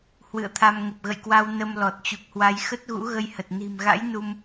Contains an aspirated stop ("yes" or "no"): yes